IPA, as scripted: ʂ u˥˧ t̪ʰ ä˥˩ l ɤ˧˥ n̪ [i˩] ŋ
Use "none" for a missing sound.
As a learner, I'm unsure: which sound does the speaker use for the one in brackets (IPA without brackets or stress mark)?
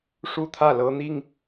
i˥